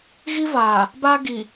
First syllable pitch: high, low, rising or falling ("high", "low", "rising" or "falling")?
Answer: high